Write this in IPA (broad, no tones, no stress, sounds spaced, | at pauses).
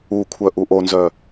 u kʷʰ œ ʔ u ʔ o n z œ